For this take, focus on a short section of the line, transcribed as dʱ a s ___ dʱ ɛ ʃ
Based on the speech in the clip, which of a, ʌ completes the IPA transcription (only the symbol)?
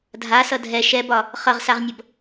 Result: ʌ